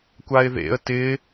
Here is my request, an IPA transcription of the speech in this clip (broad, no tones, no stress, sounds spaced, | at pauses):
kʷ a ɪ̯ ð ḛ ə̯ t ɪ